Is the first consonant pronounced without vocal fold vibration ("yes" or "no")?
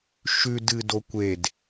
yes